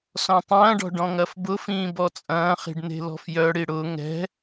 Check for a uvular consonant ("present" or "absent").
present